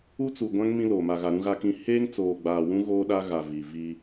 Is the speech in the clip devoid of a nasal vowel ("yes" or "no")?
no